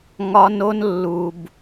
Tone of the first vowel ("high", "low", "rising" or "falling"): high